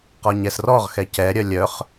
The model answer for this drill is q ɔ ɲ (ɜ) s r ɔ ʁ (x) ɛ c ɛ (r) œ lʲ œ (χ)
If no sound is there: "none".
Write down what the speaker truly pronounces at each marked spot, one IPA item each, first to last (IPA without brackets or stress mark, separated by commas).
ɛ, x, ɾʲ, χ